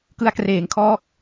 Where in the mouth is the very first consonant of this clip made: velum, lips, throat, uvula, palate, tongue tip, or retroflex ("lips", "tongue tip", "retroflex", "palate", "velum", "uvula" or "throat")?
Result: velum